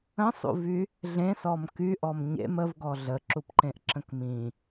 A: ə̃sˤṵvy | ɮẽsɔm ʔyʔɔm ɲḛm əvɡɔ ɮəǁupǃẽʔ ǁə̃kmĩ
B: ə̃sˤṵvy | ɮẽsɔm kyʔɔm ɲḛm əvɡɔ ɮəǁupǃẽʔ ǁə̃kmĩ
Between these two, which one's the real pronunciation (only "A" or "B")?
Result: B